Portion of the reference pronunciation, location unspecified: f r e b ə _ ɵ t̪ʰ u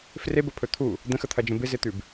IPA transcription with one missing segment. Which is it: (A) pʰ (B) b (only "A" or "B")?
A